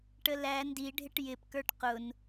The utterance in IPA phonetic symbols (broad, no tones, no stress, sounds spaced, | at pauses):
ʈ ə l æ n d i ɖʱ ɪ ʈ j ɪ p k ə˞ ʈ q ʊ n